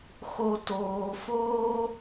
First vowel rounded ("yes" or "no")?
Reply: yes